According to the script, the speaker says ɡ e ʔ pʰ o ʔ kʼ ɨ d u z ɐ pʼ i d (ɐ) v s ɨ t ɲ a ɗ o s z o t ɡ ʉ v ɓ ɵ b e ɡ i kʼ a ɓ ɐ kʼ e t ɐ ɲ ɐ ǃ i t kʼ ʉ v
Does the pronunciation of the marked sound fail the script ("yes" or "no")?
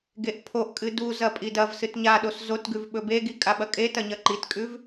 no